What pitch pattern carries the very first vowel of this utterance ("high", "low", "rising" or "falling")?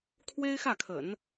high